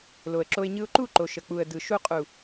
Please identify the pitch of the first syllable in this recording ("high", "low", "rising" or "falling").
low